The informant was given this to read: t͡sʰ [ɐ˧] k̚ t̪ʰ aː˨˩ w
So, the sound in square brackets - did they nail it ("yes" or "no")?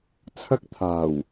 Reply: no